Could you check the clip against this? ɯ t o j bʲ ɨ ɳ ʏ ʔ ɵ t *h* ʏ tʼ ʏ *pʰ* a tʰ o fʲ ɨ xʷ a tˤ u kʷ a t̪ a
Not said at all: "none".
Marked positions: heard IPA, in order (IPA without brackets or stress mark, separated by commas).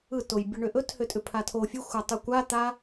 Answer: h, pʰ